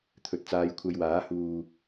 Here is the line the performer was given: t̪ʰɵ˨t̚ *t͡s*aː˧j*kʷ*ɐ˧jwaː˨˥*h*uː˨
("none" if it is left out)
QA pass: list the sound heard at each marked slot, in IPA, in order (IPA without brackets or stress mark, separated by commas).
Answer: t͡s, kʷʰ, h